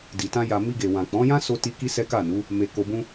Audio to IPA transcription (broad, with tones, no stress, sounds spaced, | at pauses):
d i˨ t ã˧ j a˨ m i˧ ɡ e˨ w ã˨ k͡p ɔ̃˨˦ j ã˦ s o˧ t i˧ k i˦ s ɛ˦ k a˦˨ n u˨˦ | m e˧ k o˧ b ũ˦